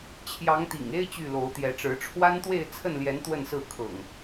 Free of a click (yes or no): yes